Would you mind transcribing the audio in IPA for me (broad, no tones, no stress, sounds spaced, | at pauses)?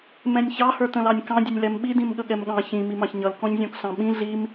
m ɛ̃ nʲ ç ɑ h ə˞ t ə̃ l ɑ nʲ k ɑ̃ dʲ ʊ nʲ l ɛ m ɓ i d ĩ m ɠ ə ɠ ɛ m ɠ ɑ̃ ç ĩ m i m ɑ̃ ç ɲ ʌ l k ɔ̃ ɲ zʲ ɔ̃ k ɬ ɑ̃ ɓ ĩ ɮ i m